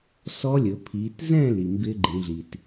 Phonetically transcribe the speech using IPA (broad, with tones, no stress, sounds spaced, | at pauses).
s ɔ˦˥ lʲ ɵ˩˧ pʰ i˩˧ t z ɛ̃˥˨ l i˩ m b ɪ˦˥ ɡ͡ǃ ĩ˩˧ ɮ i˩ t